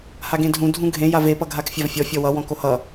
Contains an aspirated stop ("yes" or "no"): no